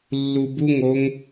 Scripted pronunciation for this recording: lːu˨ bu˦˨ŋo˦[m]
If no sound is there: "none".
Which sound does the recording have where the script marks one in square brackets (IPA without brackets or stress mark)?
ŋ